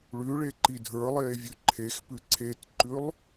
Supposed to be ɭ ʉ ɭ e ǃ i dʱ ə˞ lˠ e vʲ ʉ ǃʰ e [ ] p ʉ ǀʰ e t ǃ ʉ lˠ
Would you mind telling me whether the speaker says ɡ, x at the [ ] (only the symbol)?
x